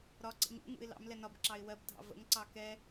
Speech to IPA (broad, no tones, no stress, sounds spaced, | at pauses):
ɾ ɒ ǀ ə̰ ɲ ṵ ŋ ṵ ɪ̯ l ɑ̰ m l ɛ n ɒ b ǁ ɑ ɪ̯ w ɜ b dʱ ɑ̰ v ə̰ ŋ ǀ ɑ k ɛ